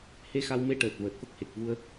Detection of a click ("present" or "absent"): absent